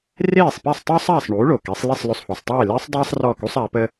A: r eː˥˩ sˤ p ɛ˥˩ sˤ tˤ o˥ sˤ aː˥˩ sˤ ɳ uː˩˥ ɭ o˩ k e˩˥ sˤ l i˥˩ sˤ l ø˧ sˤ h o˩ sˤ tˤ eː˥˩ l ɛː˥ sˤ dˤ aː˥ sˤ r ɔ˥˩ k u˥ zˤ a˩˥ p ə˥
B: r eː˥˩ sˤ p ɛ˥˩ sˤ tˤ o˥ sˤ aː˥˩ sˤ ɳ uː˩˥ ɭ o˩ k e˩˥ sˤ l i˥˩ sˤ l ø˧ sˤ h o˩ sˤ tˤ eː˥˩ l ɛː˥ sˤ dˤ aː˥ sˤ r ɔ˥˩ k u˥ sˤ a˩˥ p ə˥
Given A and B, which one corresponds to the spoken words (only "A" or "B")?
B